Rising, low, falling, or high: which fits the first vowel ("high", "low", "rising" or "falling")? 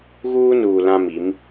high